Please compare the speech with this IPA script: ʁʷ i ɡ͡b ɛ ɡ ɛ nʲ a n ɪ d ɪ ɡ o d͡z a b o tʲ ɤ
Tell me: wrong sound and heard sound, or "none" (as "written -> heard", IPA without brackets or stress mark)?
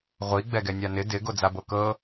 tʲ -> k